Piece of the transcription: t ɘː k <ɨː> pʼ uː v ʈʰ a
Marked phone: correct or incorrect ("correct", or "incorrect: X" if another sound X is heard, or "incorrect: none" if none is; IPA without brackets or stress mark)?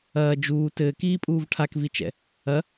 incorrect: iː